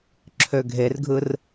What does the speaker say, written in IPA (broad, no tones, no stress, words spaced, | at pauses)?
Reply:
ǁʰøɡʱerɡʱɯr